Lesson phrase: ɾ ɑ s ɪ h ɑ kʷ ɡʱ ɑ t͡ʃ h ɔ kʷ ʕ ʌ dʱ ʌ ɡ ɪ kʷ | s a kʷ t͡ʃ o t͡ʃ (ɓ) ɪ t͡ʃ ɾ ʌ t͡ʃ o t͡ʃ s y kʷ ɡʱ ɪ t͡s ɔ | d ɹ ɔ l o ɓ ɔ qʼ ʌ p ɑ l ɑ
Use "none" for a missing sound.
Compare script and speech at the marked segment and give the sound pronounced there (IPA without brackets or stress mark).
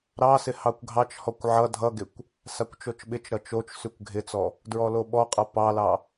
ɓ